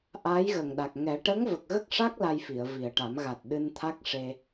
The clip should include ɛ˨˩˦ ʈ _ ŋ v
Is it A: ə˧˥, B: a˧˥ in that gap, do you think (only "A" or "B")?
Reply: A